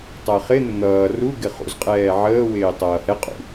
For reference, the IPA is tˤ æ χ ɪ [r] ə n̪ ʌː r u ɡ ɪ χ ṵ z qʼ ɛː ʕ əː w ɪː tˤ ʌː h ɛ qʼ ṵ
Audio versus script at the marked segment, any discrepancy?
yes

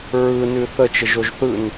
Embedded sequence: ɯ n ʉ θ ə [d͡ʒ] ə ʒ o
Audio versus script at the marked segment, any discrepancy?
yes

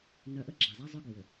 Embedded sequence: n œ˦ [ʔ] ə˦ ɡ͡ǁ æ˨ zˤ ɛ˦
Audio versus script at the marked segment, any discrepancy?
no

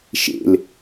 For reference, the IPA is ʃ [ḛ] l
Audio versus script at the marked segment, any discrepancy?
no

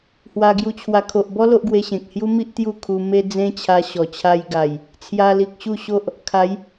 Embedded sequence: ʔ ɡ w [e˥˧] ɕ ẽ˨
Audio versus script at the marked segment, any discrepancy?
yes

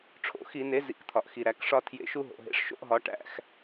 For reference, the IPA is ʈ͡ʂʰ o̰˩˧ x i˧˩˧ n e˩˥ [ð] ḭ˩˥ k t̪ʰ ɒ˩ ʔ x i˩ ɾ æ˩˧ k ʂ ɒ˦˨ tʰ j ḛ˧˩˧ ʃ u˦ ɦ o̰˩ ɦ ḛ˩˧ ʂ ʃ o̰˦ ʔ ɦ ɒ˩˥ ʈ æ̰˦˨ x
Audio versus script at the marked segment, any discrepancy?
yes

